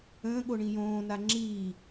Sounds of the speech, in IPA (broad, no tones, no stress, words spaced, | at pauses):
ə̃ːɠo ɳĩjõːna ŋ͡ǁiː